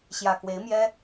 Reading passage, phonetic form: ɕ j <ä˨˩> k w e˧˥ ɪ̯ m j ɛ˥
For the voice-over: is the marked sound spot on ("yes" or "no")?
yes